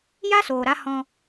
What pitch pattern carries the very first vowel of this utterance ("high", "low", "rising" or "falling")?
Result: high